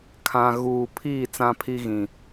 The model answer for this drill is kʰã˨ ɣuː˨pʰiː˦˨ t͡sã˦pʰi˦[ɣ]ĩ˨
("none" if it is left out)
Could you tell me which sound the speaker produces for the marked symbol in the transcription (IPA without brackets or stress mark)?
ɣ